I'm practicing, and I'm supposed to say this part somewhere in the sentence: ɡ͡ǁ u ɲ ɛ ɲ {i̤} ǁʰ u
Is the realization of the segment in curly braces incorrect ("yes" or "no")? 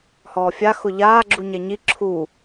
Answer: yes